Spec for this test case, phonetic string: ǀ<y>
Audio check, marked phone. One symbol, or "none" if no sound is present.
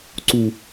u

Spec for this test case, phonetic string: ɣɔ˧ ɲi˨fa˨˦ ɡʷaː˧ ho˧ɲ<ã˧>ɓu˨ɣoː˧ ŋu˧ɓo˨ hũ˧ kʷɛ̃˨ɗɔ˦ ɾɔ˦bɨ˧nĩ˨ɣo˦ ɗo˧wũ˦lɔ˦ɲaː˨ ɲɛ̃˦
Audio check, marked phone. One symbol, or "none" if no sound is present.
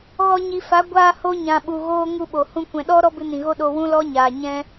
ã˨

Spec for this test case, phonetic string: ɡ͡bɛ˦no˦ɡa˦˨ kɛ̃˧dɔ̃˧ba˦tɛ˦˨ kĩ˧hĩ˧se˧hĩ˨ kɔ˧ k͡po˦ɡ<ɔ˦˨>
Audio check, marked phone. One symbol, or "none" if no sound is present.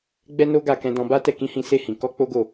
o˦˨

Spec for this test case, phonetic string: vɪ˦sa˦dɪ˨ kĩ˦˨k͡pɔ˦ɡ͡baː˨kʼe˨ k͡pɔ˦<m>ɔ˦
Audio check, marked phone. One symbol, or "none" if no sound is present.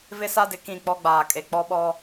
ɓ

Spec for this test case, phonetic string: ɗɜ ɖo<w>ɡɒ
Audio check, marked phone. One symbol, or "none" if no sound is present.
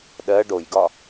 j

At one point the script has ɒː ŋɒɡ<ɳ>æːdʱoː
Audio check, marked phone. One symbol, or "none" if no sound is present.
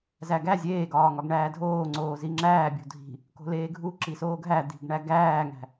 ɳ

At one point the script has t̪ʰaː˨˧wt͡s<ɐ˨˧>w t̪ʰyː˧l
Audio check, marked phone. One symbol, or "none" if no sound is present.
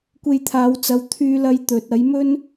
ɐ˨˧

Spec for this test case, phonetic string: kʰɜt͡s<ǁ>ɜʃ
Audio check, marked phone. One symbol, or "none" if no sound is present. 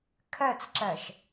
ǁ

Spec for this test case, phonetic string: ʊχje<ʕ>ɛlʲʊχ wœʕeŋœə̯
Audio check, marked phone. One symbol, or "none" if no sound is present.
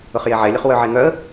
ʕ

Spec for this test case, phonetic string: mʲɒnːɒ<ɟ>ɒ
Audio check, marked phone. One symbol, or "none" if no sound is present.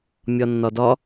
d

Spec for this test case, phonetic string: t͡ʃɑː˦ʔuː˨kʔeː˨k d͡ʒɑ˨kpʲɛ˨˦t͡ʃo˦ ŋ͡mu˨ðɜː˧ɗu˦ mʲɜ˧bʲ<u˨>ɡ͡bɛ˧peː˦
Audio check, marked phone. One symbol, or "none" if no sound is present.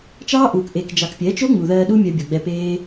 o˨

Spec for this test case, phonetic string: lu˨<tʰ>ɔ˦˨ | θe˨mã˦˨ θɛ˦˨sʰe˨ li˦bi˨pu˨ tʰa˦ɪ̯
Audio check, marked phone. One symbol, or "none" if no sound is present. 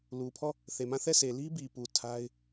pʰ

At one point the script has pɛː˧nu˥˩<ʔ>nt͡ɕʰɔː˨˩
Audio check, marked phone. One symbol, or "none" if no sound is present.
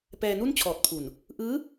none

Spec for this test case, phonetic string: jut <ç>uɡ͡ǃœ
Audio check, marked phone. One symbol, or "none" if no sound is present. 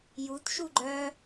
ʃ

